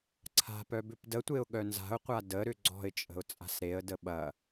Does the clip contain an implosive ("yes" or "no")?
yes